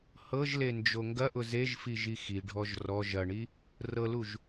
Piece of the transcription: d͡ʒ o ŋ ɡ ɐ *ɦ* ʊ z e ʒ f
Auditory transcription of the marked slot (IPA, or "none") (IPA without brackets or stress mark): ʔ